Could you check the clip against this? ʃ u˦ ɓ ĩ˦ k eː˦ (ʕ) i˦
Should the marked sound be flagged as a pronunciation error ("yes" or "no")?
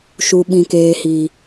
yes